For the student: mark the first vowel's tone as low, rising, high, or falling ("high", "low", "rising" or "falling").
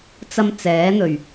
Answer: high